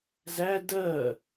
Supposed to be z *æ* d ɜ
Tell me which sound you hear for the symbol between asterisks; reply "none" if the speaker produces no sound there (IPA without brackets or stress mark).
æ